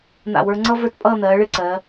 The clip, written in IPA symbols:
n̪ a̰˧˩ w ə˞˧ ŋ͡ǀ ʌ˥ v ə˞˥˧ t pʼ ʌː˥˧ n̪ ɜː˩˧ ɭ ɪ˥˧ ǀ ɜ˩˧

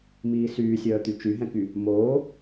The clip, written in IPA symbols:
m iː s yː sʲ œː t̪ y t͡ʃ y ɦ ɛ̃ k y | m oː

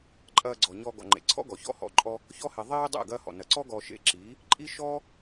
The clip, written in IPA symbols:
ǃʼ ɐː˧ ɡ͡ǀ ɔ˨ ɲ ɔ˧ ɡ ɔ̰˨ ŋ͡ǃ ḛ˨ ǀʰ ɔ̰˦ ɡ ɔ˨ ç ɔ̰˦ h ɔ̰˧ ǃʼ ɔ˧ | ç ɔ˧ h e˨ ðˤ iː˦ dˤ ḛ˦˨ ɡ ɐː˦ h ɔ̰˨ n ɐ˨ ǀ ɔ˦ ɡ ɔ˧ ʃ ḛ˧ ǁ iː˨˦ | ǃʼ i˦ ʃ ɔː˦

